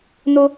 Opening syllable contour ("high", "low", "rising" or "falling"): high